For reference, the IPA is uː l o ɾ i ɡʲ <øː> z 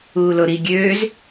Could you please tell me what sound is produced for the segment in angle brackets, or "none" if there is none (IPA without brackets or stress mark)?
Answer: øː